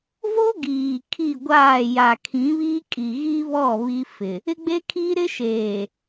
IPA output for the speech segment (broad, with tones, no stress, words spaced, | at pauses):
vo˦ɡiː˨ kʰi˦˨ɡʷaː˦˨ ja˨kʰĩ˨˦βi˦kʼi˨ ɣi˦βɔ˦˨ βi˦fɪ˨ | ɪ˦ɡ͡be˦kʰi˦ɾɪ˦ ʃeː˨